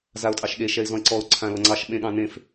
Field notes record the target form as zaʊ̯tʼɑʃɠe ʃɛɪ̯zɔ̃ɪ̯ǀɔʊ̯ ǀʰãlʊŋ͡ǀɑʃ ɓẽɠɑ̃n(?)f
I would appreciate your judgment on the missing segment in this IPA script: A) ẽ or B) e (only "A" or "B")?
A